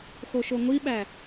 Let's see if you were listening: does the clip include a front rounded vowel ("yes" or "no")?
no